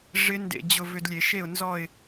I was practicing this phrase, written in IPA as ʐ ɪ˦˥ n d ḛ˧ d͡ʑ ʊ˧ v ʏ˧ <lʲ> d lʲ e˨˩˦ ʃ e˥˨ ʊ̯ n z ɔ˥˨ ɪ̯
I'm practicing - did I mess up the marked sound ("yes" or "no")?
yes